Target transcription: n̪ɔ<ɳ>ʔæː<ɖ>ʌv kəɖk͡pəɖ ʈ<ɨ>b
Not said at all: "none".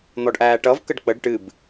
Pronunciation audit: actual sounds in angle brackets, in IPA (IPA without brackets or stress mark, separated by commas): ɖ, ʈ, ɨ